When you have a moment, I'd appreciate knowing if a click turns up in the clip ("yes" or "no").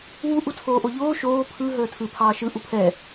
no